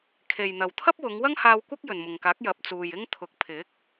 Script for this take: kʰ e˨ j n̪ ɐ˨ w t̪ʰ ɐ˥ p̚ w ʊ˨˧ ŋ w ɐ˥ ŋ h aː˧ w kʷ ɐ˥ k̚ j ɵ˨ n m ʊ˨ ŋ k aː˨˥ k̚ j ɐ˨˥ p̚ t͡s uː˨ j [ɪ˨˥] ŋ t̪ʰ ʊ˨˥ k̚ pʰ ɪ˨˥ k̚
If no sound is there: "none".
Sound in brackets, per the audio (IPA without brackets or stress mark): ɪ˥